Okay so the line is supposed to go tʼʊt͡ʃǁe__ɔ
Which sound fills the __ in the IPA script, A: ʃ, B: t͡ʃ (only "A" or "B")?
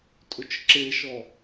A